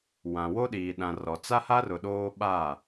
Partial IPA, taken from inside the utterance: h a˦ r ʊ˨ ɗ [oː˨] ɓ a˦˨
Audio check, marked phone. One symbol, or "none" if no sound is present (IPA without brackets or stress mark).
oː˦